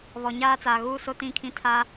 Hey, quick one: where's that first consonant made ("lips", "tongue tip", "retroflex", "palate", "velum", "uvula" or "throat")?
lips